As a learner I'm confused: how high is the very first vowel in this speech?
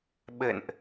mid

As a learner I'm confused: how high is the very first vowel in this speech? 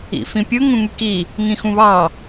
high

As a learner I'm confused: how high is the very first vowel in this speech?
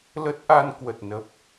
mid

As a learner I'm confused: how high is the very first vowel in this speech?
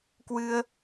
high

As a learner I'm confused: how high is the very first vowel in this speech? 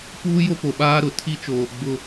high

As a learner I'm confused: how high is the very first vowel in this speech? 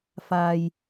low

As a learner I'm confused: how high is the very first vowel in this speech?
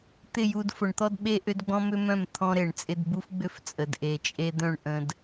high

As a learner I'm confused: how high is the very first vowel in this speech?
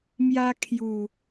low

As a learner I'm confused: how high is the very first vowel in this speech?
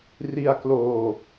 high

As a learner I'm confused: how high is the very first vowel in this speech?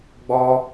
mid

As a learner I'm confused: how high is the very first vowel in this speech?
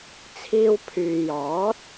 high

